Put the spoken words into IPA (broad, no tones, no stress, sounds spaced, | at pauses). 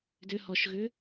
d ʏ h ɔ ʃ ɣ ʏ